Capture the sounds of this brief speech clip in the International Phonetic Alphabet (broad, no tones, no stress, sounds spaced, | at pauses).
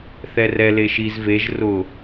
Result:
θ ɛ r ɛ l e ʃ i z v e ʒ r ʊ